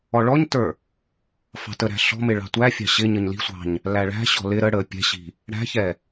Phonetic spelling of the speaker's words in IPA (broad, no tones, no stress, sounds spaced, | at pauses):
ɔ ɭ ɔ ɲ t ə˞ | f ɑ̤ t ə ɾ æ̤ ɬ ɔ̤ m ɪ ɭ ɑ̤ tʷ æ fʲ ɑ̤ ɕ ɪ ɲ ə ɲ l i̤ sʷ ɑ̤ ɲ | l æ ɭ æ̤ ɕ ɔ̤ l ɪ ɾ ə ɽ ə pʲ ɛ̤ ɕ i̤ | ɽ æ̤ ç ɛ